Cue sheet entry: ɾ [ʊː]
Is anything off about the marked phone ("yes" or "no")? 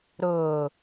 no